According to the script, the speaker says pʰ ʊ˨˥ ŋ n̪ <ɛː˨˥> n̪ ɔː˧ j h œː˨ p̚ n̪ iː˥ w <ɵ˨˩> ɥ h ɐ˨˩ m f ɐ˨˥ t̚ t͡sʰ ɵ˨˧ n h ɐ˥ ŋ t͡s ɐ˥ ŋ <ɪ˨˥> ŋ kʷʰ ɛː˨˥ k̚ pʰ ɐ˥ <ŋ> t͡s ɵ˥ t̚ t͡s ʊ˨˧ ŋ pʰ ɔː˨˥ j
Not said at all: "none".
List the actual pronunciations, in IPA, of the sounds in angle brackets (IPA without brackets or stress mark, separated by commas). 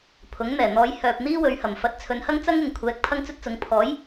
ɛː˨˩, ɵ˨˧, ɪ˨, ŋ